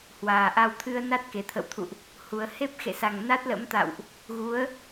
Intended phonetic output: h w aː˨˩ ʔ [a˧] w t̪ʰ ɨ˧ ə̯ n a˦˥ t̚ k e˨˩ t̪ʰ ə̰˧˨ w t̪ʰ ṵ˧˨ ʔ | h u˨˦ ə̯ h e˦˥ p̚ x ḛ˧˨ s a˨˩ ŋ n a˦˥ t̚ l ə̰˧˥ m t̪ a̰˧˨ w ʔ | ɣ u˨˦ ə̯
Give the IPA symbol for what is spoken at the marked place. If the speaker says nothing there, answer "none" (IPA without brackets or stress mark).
a˧